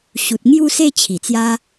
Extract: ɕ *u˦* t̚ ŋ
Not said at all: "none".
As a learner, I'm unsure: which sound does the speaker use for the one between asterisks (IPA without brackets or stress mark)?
u˨